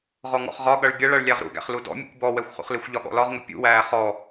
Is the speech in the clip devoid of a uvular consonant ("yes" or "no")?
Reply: no